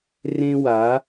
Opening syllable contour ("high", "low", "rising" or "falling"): high